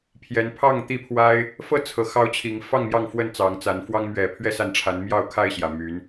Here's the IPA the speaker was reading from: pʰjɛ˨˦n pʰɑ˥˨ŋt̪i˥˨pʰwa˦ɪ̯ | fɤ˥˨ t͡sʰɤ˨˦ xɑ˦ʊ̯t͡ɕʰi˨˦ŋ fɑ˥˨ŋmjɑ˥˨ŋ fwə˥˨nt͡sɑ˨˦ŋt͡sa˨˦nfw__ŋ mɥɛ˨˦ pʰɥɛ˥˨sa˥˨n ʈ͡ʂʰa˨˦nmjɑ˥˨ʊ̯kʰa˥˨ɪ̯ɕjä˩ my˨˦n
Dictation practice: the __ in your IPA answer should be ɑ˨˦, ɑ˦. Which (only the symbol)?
ɑ˦